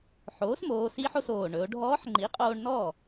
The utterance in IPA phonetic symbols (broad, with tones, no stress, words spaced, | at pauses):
ħoː˩˥smoː˩˧ si˧˥ħo˧s oː˩ ɳɵ˩˧o̯ɖʱɔː˧˥ħŋ͡ǃi˩˥qʼoː˧ɳ nɔː˥˩